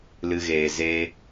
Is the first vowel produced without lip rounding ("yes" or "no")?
yes